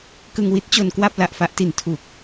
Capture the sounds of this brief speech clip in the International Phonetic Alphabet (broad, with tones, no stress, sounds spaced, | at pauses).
k ɯ˧ ŋ w i˦˥ t̚ t͡ɕ o˧ n k w a˥˩ p̚ l a˨˩ ʔ f a˦˥ ʔ t i˨˩ n tʰ u˨˩ k̚